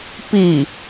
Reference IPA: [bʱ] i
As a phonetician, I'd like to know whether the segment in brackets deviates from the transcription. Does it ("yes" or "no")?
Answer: yes